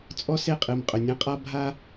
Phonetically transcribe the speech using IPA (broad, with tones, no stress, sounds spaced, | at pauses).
t͡sʼ ɔ˥ s e˥˨ qʼ ɨ˨˩ m qʼ ɵ˩˧ nʲ ɐ̃˥ qʼ a˥ bʱ a˥